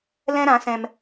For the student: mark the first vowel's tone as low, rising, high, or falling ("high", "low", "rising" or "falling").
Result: high